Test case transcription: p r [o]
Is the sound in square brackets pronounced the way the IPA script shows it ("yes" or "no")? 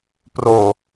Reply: yes